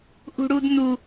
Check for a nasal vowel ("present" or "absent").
absent